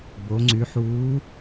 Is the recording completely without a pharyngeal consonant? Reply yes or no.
no